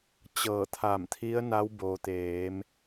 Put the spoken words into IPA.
t͡ɕ ɤː˧˩ t̪ʰ a˧˩ m t̪ʰ i˧˥ ə̯ n a˧˥ w b o˩ t̪ eː˩˧ m

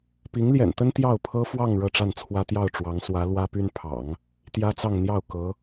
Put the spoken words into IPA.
p i˧˥ ŋ l j ɛ̰˨˩ n t̪ ə˥ n t̪ j ɑ˥˩ ʊ̯ pʰ ɤ˥ f w ɑ˥˧ ŋ ɻ ɤ˥˧ ʈ͡ʂ a˥˩ n t͡sʰ w ä˥ t̪ j ɑ˥˩ ʊ̯ ʈ͡ʂ w ɑ˧˥ ŋ s w ä˧˥ l w ä˥ p y˥ n pʰ ɑ̰˨˩˦ ŋ | t̪ j ä˥ t͡s ɑ˥˧ ŋ n̪ j ɑ˥˩ ʊ̯ k ɤ˧˥

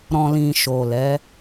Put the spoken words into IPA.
ɾ ɔ̃˨ l ĩ˨ ʃ o˨ l ɛ˨˦

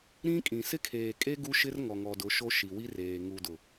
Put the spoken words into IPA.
ɾ ĩ˦ kʼ ĩ˨ s ɪ˦ kʰ eː˨ kʼ e˦ ɡ u˦ ʃ ɪ˦ r ŋ ɔ˨ ŋ ɔ˨ d ʊ˨˦ ʃ o˦ ʃ i˨ w i˦ r eː˨ ŋ u˨ d ʊ˨

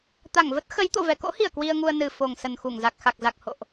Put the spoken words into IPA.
t̪ a˧˩ ŋ v ə˦˥ t̚ x ə˨˦ j t̪ o̰˧˨ v ɛ˨˩ k o̰˧˥ h i˧˩ ə̯ k w i˧ ə̯ ŋ u˧ ə̯ n ɨ˨˩ f o˨˩ ŋ s ə˨˩ n x u˧˩ ŋ z a˨˩ k̚ x a˨˩ k̚ z a˨˩ k̚ h o̰˧˨ ʔ

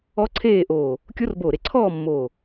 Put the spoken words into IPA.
ɔ˦˥ ǀʰ eː˥˧ ʔ oː˧˩ | kʲ o˦˥ r b oː˧˩ ɾ e˥˩ ǀʰ ɔː˥˧ mː oː˧˩

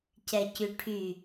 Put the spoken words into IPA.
c ɛ c y ʈʰ y

